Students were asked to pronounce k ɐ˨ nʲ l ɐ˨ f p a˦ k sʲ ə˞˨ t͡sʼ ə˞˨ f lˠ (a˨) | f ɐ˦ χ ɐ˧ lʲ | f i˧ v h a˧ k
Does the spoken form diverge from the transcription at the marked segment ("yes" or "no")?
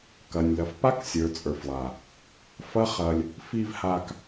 no